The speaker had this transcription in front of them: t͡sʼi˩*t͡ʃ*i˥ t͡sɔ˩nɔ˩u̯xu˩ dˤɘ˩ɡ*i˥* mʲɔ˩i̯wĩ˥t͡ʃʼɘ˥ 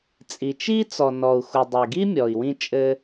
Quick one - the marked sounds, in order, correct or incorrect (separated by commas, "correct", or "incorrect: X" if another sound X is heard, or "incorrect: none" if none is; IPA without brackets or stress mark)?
correct, correct